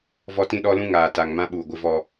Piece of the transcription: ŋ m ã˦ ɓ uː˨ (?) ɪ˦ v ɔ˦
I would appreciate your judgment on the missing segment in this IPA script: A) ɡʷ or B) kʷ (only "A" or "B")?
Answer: A